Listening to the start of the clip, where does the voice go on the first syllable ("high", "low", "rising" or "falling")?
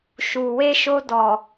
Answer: low